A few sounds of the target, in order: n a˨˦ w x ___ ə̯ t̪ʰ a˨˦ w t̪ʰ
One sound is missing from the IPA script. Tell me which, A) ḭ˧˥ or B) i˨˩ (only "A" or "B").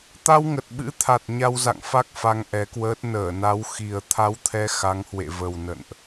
B